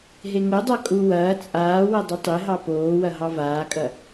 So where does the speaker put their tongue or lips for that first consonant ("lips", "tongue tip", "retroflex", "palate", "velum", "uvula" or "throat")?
throat